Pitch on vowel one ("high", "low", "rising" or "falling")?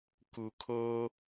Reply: low